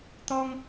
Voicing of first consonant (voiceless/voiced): voiceless